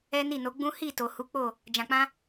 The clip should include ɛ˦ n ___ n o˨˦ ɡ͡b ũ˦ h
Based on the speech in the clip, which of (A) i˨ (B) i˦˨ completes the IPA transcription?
B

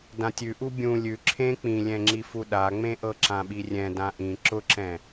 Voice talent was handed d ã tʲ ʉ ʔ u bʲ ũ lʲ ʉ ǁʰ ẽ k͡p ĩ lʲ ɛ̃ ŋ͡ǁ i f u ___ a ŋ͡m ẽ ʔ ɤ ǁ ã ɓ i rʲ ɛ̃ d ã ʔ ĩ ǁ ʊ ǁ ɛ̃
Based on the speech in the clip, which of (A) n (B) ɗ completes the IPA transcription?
B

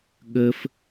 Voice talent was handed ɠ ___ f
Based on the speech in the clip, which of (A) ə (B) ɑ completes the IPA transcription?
A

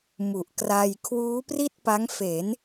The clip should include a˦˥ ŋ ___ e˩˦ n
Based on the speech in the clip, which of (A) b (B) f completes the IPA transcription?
B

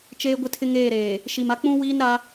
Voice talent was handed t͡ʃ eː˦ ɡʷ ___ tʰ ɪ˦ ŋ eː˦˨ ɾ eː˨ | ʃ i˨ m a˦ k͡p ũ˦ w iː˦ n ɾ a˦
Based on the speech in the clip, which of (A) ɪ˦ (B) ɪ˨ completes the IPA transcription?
A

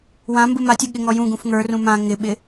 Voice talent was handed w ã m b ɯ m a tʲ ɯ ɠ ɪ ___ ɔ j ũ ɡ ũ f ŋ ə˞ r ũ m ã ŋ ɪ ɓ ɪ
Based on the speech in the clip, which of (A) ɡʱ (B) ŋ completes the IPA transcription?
B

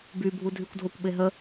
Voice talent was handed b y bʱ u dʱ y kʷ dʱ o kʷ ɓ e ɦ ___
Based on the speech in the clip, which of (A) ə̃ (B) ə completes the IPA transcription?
B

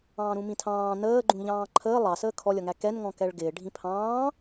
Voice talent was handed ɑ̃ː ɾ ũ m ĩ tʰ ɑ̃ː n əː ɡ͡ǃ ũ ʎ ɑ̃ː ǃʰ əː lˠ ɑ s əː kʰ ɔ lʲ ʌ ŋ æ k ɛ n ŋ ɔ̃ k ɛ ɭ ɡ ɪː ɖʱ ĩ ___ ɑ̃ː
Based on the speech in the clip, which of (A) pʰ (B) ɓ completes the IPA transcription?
A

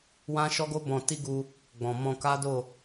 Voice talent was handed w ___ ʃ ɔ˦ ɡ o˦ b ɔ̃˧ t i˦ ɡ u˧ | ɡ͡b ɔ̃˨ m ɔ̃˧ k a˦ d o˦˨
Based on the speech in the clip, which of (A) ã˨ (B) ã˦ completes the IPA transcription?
B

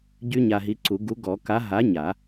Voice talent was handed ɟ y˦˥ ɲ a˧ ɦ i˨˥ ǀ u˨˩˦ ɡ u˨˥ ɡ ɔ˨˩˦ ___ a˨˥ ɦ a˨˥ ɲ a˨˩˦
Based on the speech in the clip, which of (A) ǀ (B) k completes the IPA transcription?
B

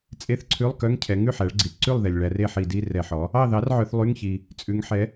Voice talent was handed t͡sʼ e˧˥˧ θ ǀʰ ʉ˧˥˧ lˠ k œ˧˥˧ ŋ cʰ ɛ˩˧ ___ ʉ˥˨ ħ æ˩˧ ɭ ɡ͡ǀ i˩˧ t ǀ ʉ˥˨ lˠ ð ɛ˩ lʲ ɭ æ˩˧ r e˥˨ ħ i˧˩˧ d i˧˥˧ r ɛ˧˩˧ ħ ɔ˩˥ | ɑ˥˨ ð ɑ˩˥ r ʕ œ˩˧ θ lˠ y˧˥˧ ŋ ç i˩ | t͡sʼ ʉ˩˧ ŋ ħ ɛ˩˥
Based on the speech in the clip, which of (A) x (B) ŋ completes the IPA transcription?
B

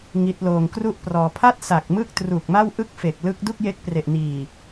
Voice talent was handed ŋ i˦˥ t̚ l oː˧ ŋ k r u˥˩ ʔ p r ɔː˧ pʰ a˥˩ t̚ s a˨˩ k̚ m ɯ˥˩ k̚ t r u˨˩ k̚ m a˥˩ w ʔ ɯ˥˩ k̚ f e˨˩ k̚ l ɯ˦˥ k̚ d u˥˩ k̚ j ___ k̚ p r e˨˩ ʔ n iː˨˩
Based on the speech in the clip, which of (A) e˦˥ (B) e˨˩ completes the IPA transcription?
A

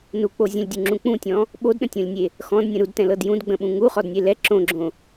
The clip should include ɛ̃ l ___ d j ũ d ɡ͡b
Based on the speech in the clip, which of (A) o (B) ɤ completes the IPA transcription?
B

